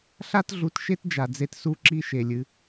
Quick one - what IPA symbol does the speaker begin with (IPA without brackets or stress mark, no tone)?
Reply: ɬ